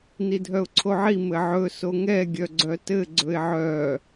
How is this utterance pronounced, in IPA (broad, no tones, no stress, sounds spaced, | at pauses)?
n i dʱ œ ʊ̯ ǀʰ o ʕ i m ɘ ʕ ɵ s o ŋ ɛ ɡʲ œ ɡ͡ǀ œ t ɘ ɡ͡ǀ ɵ ɪ̯ ʕ œ